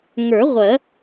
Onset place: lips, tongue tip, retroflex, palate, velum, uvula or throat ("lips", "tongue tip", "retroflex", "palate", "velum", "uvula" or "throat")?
velum